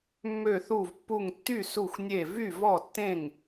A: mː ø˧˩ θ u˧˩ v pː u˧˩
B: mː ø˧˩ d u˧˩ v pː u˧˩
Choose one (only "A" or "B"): A